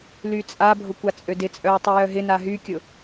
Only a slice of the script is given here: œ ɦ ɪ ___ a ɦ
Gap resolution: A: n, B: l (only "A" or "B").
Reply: A